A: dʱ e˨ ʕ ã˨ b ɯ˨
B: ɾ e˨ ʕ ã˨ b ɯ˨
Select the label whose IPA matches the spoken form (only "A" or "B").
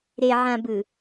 B